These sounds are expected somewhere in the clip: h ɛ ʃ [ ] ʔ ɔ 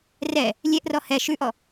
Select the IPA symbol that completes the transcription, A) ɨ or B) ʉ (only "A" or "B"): B